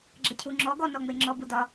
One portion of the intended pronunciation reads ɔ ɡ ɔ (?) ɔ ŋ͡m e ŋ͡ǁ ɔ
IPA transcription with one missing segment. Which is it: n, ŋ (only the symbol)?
n